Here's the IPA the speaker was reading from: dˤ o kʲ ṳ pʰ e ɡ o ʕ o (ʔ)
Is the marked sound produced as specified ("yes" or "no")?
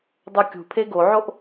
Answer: yes